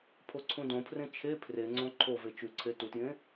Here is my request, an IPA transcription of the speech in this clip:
pʰoǀʰũdõpʰrẽ t͡ʃʰe pʰreŋ͡ǀõ ǃʰove t͡ʃʉǀʰe tutjẽ

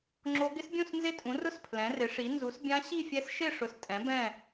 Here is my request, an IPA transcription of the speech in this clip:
ŋ͡ǁo˦˥ ɡɪ˦˥sbʲũ˥˧s nzɪ˥˧tʼũ˨˥rʊ˥˧s pʰlɛ̃˨˥rɪ˨˥ʂi˨˥ nzu˨˥sbʲã˦˥ɕi˥˧fʲɛ˦˥s ʃɪ˥˧ʂʊ˨˥s tʼɛ̃˨˥bɛ̃˥˧

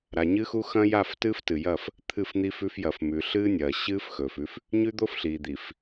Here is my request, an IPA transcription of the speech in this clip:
ɾa˨ɲɨ˦xu˦ xɐ̃˦ ja˦˨ftɨː˦ftɨ˨jɐ˦˨f | t̪ʰɨ˦˨fn̪i˦fʉ˦f jɐ˨fmʉ˨ɬɨː˦nʲɐː˨ ɕɨː˦f xɵː˨fʉ˦f | ɲʉ˦ d̪o˦fɬiː˨d̪i˨f

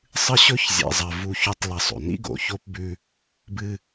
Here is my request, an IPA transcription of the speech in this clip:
sˤɨ˦ɕɵ˦çzʲḛ˨zˤɐ˨ vu˦çʉ˦tˤlɐ˦˨sˤo̰˨ nḭ˦ɡo̰˨ço˦pbʉ˦ | bɨ˦

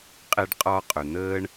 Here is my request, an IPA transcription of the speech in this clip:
qʼɛ˦ɖqʼɒː˦qʼœ˨ n̪əː˦ɳ

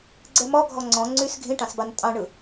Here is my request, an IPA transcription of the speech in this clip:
ɡ͡ǀɛmɔ ɡʱɔŋ͡ǀɔ̃ ŋ͡ǀys ɡʱĩʈɑ̃sbɑn tʼɑ̃ɳɯ

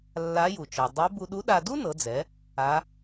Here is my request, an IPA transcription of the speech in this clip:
lːa˧˥ju˩t͡ʃɔ˩ dˤe˧˥ bu˧ɗu˧˥ɗa˧ du˥nɤ˩˧d͡zɛ˩˧ | a˧˥

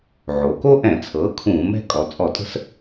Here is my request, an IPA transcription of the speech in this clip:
ʕo˩˧ ko˥ʔɛ̃˧˩˧ t͡sʰɤː˩˥ kʰũː˧˩˧mɛ̤˥˧ kʼɔ˩˧t͡sʼɔ˧˩˧tʼə̤˥˧s

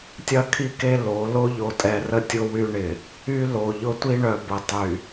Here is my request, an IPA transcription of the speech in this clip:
tʲɐ˦kʰi˦˨ke˦ lo˨˦ lo˦ʎo˨tʼɛ˨rə˦ tʲʊ˦wy˦ɳɪ˨ | y˦ lo˨ ʎʊ˦tʷi˦ɳœ˨ bə˨tˤy˨

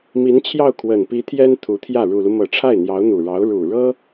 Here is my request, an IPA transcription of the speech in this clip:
mi˧˥nt͡ɕʰjɑ˥˩ʊ̯ kʰwə˨˩npi˧˥t̪ʰjɛ˥n t̪ʰu˧˥t̪ʰjä˥˩ ɻu˨˩lu˦ mɤ˨˩ ʈ͡ʂʰa˥˩ɪ̯n̪jɑ˧˥ʊ̯n̪u˨˩ɻɑ˧˥ʊ̯ ɻu˨˩ɻɤ˥

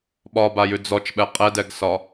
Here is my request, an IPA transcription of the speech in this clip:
ɓɒbajʉ d͡zɔt͡ʃɓɛ qʼɛdɛɡsɒ

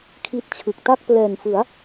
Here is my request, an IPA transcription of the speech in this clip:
kʰi˥˩t̚t͡ɕʰɯ˨˩k̚ ta˥˩k̚plɛː˨˩nfɯ˩˦a̯

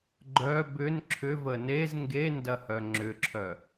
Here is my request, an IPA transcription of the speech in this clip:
ɡ͡ǃœ bʏn ǁʰʏvə nez ŋɡendɐhœ ŋ͡ǁʏǁʰœ

